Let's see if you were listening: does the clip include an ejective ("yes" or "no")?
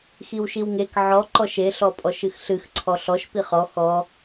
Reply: yes